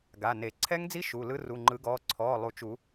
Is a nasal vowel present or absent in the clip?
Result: absent